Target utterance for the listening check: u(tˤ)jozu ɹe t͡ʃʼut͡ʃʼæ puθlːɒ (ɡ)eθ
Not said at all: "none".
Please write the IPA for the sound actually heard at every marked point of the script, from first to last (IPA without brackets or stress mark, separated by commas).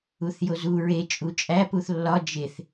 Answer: θ, d͡ʒ